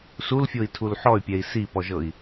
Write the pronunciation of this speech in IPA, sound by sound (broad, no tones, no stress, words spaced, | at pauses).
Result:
sulfʲoi̯tʰul ħɔy̯pʲɛi̯ sipɔʒɤi̯